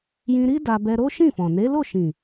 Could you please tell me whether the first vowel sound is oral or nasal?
nasal